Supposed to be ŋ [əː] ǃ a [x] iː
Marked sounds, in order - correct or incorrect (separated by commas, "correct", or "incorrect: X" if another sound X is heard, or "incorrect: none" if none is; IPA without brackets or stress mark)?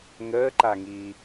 correct, incorrect: ŋ